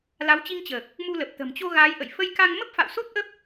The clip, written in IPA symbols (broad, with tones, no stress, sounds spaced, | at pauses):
l a˨˦ w t͡ɕ i˧ ŋ t͡ɕ əː˨˩ k̚ | m u˧ l ə˨˩ p̚ t̪ ə̤˨˩ m t͡ɕ o˧ ɣ aː˨˦ j ʔ ə̰˧˨ j f ə˧ j k a˧ ŋ m ə˦˥ p̚ f a̰˧˨ w s o˦˥ t̚ ʔ ə˦˥ p̚